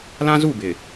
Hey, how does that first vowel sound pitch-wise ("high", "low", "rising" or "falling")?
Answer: high